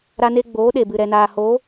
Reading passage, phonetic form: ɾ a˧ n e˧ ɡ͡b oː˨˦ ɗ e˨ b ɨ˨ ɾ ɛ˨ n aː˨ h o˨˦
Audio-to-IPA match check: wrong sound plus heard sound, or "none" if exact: none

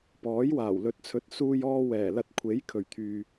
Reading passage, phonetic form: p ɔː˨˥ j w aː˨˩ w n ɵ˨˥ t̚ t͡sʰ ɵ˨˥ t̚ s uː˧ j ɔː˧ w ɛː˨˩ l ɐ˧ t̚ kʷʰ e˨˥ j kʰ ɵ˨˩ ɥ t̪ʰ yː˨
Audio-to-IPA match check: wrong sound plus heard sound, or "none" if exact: n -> l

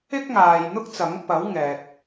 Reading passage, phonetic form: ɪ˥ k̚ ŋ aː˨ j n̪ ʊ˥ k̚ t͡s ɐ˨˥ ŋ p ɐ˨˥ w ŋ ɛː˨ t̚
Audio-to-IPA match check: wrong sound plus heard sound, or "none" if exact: none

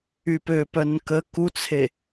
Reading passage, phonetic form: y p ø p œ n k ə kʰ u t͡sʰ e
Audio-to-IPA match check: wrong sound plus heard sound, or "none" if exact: kʰ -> k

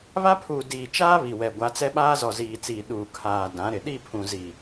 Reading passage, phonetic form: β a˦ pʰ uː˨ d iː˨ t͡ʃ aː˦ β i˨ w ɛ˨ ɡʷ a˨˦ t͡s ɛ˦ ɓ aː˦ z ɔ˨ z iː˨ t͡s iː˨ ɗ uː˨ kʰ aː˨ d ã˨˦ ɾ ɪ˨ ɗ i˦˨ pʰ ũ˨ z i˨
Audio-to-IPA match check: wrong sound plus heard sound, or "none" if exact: none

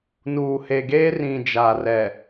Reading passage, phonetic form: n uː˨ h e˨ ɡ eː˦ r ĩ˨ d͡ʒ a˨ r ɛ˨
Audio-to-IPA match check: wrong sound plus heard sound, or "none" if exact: none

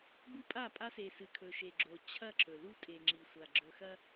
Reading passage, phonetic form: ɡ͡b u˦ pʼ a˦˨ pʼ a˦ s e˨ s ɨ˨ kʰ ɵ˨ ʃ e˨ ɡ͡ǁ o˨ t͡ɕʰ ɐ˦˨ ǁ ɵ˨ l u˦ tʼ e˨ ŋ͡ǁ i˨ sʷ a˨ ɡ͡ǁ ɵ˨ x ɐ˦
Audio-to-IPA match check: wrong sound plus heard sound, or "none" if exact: none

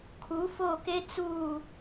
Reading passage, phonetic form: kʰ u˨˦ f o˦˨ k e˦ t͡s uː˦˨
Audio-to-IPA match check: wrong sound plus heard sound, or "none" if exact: none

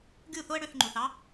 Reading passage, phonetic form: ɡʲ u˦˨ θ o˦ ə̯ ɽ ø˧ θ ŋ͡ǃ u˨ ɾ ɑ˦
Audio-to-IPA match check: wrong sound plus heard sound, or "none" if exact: ɾ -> θ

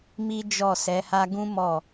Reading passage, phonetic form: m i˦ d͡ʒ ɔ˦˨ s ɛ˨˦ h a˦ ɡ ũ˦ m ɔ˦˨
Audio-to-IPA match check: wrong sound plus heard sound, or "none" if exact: none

